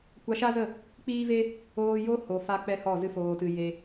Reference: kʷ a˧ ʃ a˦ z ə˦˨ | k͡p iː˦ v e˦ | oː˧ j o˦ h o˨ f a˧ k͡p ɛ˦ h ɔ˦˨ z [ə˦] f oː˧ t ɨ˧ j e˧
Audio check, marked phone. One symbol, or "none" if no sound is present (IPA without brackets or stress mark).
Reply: ɨ˦